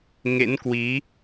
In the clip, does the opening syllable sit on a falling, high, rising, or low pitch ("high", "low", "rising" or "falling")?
rising